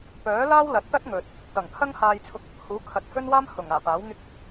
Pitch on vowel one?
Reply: rising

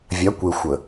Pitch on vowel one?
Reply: rising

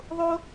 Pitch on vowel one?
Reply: high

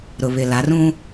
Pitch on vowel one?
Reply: low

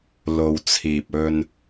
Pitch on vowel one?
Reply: low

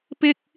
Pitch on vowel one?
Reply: high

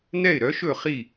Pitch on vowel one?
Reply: falling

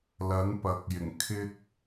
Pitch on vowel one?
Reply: rising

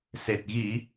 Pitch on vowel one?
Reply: low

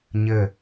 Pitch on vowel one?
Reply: low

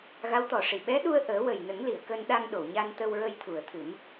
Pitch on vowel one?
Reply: rising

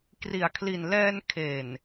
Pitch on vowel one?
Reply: low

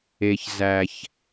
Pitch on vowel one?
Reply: low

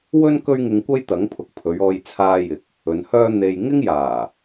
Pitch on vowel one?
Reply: high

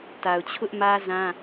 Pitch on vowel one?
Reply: low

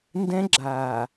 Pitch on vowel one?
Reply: high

